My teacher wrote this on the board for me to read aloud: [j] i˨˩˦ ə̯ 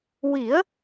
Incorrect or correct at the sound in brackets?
incorrect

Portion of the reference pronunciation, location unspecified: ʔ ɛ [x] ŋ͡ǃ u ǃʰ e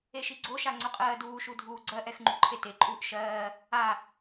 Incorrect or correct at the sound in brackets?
correct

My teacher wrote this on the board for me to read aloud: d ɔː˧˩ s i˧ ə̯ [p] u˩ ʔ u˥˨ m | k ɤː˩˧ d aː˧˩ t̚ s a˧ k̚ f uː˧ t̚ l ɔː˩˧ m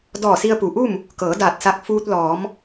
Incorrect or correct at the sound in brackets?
correct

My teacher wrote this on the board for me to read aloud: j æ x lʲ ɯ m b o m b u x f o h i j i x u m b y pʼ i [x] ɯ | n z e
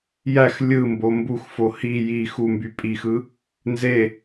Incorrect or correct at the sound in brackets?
correct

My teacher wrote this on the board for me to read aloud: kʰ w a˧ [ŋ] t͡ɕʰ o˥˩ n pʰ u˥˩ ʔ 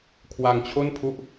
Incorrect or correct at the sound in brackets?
correct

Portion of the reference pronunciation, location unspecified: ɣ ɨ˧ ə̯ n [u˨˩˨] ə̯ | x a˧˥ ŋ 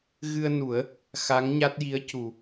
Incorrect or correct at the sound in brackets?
incorrect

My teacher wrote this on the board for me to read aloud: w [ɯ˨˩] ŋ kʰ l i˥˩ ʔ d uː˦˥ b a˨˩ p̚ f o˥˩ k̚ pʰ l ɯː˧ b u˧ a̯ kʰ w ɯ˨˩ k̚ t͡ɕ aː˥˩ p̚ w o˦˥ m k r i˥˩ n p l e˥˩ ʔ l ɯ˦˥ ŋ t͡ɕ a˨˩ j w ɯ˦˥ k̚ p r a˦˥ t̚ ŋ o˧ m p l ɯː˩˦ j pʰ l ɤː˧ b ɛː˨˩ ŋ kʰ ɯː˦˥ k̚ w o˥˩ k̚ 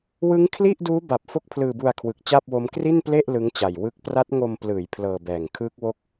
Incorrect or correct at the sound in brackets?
incorrect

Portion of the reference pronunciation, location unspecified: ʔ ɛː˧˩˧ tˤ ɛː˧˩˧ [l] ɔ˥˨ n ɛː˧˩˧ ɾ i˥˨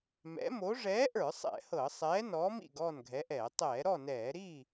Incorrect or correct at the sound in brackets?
incorrect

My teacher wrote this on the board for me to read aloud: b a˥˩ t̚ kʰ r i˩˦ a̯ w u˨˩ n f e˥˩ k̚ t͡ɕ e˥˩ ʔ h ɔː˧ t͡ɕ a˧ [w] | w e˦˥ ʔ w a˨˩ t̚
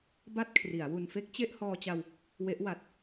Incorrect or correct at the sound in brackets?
correct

